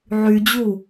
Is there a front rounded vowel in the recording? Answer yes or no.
yes